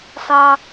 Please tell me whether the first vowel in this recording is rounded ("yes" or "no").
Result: no